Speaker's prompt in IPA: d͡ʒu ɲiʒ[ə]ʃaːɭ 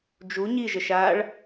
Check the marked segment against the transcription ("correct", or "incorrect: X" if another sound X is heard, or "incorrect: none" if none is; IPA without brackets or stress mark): correct